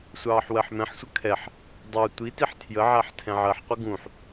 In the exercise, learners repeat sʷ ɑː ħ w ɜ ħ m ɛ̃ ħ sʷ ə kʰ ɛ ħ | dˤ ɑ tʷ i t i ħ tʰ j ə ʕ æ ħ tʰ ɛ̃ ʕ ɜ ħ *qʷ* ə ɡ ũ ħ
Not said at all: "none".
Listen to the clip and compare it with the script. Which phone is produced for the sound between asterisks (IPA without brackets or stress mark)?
qʷ